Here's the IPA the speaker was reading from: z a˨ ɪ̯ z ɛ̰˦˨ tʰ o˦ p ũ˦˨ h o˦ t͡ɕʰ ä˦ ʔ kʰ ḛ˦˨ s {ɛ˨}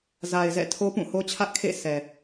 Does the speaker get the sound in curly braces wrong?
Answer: no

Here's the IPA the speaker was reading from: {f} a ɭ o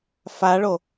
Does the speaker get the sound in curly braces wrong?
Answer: no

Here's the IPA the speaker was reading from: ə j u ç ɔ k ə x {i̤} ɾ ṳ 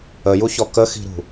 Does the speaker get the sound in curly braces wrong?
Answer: no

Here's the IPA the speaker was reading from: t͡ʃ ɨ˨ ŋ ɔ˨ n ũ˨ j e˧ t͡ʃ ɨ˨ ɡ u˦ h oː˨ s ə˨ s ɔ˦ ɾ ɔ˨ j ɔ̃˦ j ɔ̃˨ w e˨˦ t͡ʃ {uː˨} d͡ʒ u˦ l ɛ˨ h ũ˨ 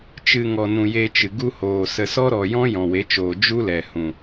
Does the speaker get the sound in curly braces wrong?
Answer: yes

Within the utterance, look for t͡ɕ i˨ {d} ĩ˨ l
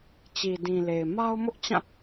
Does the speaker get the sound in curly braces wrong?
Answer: no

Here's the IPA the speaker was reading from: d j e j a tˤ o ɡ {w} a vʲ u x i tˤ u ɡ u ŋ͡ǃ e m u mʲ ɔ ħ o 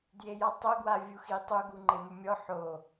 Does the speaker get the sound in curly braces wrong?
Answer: no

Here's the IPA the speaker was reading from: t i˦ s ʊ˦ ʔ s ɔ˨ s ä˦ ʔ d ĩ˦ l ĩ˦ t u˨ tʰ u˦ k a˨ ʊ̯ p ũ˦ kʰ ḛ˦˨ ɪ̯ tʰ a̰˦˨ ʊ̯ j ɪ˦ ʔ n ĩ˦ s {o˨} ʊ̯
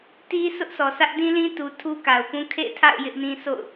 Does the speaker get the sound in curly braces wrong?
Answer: yes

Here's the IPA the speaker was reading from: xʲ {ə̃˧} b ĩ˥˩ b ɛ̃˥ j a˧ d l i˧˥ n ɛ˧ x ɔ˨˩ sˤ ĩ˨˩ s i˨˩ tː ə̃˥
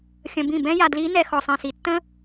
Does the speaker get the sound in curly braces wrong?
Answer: no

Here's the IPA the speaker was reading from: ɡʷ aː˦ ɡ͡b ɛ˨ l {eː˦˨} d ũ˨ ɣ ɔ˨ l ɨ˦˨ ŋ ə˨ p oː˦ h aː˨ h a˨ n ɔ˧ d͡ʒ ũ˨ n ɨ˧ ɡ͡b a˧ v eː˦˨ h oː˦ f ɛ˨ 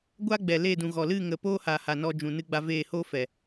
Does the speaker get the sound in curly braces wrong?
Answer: no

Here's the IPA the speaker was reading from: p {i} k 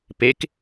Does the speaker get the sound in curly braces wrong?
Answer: yes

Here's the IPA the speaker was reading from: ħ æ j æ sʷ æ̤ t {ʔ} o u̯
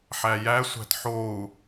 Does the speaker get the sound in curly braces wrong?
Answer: yes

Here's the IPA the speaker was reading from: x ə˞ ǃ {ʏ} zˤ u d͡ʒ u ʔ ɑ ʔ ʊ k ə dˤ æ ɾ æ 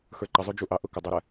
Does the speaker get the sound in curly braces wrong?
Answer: yes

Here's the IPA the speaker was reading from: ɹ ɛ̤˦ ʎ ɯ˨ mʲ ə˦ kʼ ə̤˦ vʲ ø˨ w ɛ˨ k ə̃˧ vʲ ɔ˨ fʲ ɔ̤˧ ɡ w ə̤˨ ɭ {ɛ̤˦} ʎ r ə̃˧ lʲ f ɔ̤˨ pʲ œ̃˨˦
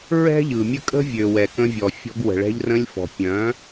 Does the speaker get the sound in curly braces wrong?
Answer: yes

